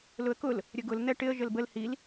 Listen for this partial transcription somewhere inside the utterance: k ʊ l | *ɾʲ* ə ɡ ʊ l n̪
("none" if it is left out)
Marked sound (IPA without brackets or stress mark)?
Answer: ɾʲ